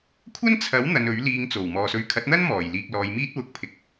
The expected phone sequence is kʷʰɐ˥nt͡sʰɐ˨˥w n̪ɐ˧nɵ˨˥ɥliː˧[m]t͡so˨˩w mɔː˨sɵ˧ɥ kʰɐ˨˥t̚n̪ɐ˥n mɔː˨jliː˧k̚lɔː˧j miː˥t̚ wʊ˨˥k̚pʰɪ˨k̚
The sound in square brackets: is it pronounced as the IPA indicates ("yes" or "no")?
no